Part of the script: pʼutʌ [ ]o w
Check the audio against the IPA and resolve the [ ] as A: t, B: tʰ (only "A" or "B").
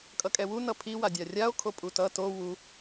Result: A